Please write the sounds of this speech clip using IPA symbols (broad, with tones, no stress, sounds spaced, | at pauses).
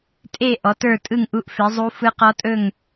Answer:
tʼ e˥˨ ʔ ɔ˩˥ t ə˞˥˨ tʼ ɯ˥˨ ŋ ʔ u˧˥ ʔ f e˩˥ zˤ u˧˥ f ɯ˧˥ q ɔ˧˥ tʼ ɵ˥˨ ŋ